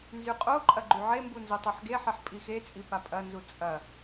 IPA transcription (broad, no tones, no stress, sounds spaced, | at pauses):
n z y qʼ o ǃʼ ɐ ɡ͡ǃ y ʕ e m b u n z u tˤ o ħ ɡ e ħ e ħ pʼ i x e t͡sʼ i p a pʼ ɐ n z u t͡sʼ ɐ